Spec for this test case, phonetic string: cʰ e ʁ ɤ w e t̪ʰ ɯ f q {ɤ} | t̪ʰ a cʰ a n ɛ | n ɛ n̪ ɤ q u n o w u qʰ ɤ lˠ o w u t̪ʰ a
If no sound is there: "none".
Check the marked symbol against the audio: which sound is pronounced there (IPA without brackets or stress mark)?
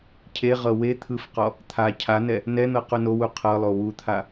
ɔ